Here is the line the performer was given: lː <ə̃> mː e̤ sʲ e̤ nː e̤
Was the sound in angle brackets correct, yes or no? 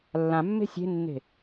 no